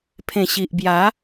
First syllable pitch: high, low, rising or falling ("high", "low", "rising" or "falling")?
low